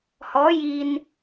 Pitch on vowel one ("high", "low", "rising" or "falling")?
rising